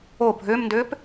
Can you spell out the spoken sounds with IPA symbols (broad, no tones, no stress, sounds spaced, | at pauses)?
o bʱ ʏː m n d ʏː p